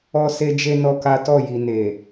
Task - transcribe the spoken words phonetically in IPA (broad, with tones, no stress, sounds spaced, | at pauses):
ɔ˦ s e˦ d͡ʒ e˦ n ɔ˦ k a˦ t ɔ˦˨ j i˨ n e˨